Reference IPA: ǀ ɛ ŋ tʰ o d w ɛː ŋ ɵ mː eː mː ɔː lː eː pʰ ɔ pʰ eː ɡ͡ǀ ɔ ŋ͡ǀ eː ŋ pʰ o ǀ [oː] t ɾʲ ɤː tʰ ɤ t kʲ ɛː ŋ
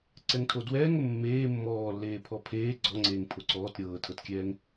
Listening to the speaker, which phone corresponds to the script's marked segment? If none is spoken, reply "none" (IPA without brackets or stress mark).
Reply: ɔː